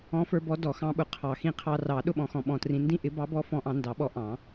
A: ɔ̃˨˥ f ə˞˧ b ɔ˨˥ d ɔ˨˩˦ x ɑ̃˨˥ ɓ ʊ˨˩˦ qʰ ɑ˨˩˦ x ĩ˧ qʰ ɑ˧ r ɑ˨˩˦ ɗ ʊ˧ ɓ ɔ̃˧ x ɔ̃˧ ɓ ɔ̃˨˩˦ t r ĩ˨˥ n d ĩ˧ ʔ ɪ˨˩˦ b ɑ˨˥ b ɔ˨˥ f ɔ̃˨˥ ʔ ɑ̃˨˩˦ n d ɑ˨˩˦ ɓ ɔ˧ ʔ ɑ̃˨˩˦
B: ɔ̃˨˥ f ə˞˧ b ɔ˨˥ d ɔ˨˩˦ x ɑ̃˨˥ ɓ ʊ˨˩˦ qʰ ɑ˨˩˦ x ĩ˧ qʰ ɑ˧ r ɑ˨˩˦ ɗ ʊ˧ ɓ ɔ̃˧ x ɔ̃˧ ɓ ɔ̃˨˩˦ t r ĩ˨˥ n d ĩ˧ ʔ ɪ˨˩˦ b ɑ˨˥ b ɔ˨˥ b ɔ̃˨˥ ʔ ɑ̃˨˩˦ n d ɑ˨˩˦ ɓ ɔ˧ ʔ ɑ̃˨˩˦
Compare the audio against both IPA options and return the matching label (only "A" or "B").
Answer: A